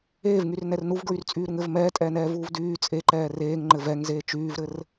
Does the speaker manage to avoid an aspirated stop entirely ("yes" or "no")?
yes